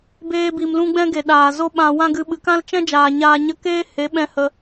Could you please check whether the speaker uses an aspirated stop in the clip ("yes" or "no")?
no